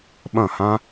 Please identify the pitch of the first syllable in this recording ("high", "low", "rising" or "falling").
falling